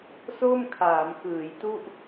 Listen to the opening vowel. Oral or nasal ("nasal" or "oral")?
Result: oral